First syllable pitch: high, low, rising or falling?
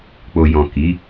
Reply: low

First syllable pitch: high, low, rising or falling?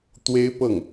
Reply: high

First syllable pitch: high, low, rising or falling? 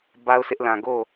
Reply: high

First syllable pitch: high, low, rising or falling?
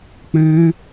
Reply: high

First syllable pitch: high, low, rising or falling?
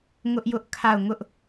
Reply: high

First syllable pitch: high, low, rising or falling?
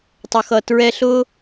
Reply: low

